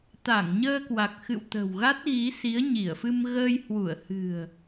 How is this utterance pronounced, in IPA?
t̪ a˧˩ ŋ ɲ əː˧ k w a˨˩ k̚ x ɨ̰˧˨ w t̪ ə̤˨˩ w ɣ a˦˥ t̚ ɣ i˨˦ s i˨˦ ə̯ ɲ i˧˩ ə̯ f ɨ˧ m ɣ əː˧ j h w u˧˩ ə̯ h ɨ̤˨˩ ə̯

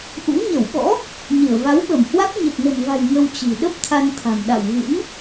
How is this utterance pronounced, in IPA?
ʔ ṵ˧˥ ɲ ə˧˩ w ɓ ɔ̰˧˥ | ɲ ɨ˧˩ ə̯ v a˨˦ w ɓ ə˧˩ m h w a˦˥ k̚ ɲ ə˨˩ p̚ n ə̤˨˩ m v a̤˨˩ j ŋ ə˧ w t͡ɕ i̤˨˩ ɗ ə˦˥ p̚ t̪ʰ a˧ n t̪ʰ a̤˨˩ m ɗ a̰˧˨ w ɣ ɨ̰˧˥ n

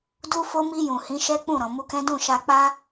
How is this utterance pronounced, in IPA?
d u˦ f o˦ m i˧ j ũ˨ h ĩ˨˦ ʃ ɛ˦ k͡p ũ˦˨ ɾ ɔ̃˨ m u˧ k ɛ̃˦ d ũ˦˨ ʃ a˧ k͡p a˦

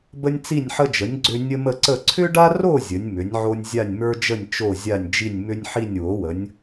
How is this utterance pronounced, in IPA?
b ə˥ nʲ t͡s i˥˧ nʲ ħ ə˥ d͡ʒ ə˨˥ nʲ ɡ͡ǀ ʏ˥ nʲ ə˥ m ə˥˧ ǀ ə˥˧ ǀʰ ʏ˥ ɖ a˥ r o˥˧ zʲ ə˨˥ nʲ m ʏ˨˥ nʲ ʕ o˥ nʲ zʲ a˥˧ nʲ m ə˞˥ d͡ʒ ə˥˧ nʲ t͡ʃ o˥˧ zʲ a˥˧ nʲ d͡ʒ i˥˧ nʲ m ʏ˥ nʲ ħ i˥˧ nʲ w o˨˥ w ə˨˥ nʲ

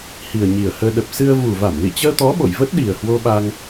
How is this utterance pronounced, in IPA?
h i˨˩ ə̯ ɲ i˨˩ ə̯ h əː˧ ɗ ə˨˩ p̚ s ɨ˧ ə̯ v u˨˩ v a˧˩ m l ḭ˧˨ t͡ɕ əː˧ t̪ ɔ˨˦ ɓ o̰˧˨ j v ə˦˥ t̚ ɗ i˨˩ ə̯ h w o˧ ɓ a˧ ŋ

